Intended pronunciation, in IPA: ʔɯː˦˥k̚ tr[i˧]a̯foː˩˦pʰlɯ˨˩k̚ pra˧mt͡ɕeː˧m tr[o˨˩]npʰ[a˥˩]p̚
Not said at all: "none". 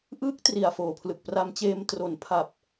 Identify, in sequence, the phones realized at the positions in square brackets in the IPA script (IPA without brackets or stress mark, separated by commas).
i˨˩, o˨˩, a˨˩